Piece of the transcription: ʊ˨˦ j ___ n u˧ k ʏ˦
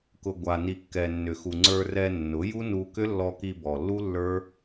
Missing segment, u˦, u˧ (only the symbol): u˦